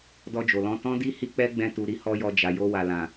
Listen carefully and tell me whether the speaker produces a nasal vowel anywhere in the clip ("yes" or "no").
yes